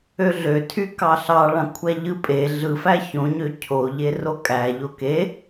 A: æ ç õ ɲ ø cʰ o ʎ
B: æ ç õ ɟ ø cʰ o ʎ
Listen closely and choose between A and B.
A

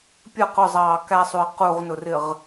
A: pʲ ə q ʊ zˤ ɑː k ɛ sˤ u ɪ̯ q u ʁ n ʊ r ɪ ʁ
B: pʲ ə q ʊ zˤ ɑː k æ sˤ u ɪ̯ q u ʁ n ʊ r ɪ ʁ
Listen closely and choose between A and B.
B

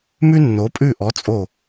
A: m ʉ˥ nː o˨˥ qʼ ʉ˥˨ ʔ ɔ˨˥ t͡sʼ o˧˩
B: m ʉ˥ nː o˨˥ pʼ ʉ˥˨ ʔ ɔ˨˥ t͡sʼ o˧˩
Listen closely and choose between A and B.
B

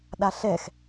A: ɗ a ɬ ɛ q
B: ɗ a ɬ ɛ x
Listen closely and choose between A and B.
B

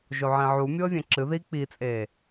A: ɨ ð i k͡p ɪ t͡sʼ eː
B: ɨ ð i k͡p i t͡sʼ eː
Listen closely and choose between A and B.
B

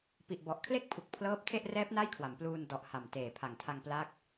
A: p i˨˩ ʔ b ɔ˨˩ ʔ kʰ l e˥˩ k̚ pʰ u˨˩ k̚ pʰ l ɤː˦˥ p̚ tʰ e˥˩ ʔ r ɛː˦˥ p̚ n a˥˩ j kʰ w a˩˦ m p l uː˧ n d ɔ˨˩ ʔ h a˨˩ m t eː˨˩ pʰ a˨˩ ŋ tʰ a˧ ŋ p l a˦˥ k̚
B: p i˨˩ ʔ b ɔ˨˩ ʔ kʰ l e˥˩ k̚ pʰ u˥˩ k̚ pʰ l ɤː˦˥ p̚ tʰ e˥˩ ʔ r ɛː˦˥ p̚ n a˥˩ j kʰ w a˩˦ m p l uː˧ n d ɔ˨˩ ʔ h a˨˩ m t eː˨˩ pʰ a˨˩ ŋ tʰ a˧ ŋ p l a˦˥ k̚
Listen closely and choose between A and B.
A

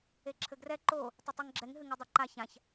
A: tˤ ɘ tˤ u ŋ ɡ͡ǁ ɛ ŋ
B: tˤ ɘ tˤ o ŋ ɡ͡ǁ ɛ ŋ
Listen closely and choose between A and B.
A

